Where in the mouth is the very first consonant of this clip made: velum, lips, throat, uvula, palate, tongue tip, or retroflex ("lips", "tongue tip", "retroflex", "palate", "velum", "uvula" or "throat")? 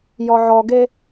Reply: palate